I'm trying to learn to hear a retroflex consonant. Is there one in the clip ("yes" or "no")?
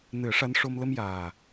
yes